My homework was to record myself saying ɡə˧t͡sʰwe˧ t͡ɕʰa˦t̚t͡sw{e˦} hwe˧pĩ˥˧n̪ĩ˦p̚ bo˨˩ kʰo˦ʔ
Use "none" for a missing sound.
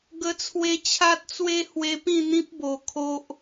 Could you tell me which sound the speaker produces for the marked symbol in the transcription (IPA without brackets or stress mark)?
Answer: e˦